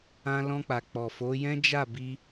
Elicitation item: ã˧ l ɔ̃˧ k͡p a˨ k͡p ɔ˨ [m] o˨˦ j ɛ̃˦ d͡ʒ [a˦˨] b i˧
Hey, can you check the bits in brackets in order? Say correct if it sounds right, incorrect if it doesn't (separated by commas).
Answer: incorrect, correct